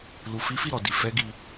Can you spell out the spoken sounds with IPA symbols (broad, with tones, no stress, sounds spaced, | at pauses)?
l u˨ f i˨˦ f i˦˨ ɾ ɔ˨ d i˨ f ɛ˨˦ ɡ i˧